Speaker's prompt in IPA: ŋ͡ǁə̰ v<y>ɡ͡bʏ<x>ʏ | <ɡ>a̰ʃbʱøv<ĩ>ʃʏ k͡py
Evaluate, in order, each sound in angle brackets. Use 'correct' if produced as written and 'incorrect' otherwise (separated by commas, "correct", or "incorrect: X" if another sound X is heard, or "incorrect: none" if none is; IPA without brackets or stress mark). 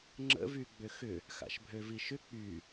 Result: correct, correct, incorrect: x, incorrect: i